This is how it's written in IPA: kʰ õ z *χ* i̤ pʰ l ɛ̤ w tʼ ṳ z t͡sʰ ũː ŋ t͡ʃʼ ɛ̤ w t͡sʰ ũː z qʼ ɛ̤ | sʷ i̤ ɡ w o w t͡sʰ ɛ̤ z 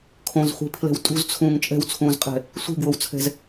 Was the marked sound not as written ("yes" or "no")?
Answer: yes